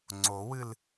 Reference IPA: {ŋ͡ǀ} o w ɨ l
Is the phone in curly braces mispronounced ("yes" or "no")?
no